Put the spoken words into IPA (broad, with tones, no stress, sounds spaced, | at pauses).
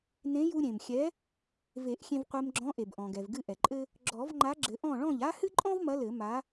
n ẽ˨˥ j u˧ ɾʲ ẽ˩ m xʲ ɛ˨˥ | v e˨˩˦ ʔ xʲ ẽ˧ v qʷ e˧ m ɡ͡ǁ ɔ̃˨˥ ʔ e˩ b ʔ ɔ̃˩ ɡ ɛ˩ v ɡ ɨ˥˩ ʔ ɛ˩ ǃʼ ɘ˥ | ɡ͡ǁ ɔ˨˩˦ v ŋ͡ǃ a˨˥ ɡ͡ǁ ɘ˨˩˦ ʔ ɔ̃˥˩ ɭ ɔ̃˥˩ ʎ a˥ h ɨ˥ ǃʼ ɔ̃˥ v m ɐ˨˥ l ɘ˨˩˦ m a˨˥